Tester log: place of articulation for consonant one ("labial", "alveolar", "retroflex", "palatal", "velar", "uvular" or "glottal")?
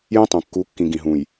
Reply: palatal